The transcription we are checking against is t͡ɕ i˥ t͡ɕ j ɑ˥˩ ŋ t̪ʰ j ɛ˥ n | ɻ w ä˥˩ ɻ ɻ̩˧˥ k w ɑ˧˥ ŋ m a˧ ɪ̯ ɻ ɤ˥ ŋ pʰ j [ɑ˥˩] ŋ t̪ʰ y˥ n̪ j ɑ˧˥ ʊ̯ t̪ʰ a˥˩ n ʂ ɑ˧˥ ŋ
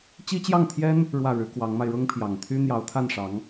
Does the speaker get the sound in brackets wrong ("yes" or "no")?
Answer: yes